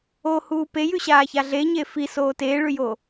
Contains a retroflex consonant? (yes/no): yes